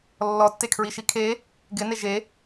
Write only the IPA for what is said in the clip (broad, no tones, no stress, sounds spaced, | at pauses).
lː ɔ tː e kʰ ɹ i ʃ i kʰ e | ɡ ɪ n e ʒ e